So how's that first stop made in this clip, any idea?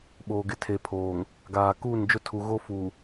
implosive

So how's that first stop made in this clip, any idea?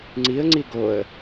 click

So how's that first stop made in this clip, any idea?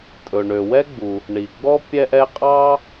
ejective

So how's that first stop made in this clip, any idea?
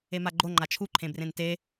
click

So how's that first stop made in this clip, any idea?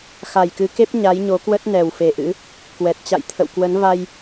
plain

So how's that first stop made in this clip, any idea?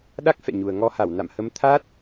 implosive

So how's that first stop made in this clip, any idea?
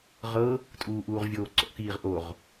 ejective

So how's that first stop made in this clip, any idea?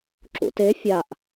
click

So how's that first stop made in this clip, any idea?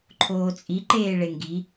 click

